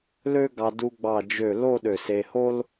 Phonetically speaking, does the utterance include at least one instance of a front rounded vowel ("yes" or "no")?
yes